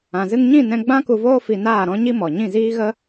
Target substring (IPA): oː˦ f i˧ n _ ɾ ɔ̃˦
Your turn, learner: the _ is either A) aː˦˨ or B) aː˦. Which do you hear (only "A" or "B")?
A